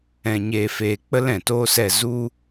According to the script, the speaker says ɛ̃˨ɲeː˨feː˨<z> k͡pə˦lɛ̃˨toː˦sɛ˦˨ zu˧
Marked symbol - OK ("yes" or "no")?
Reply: no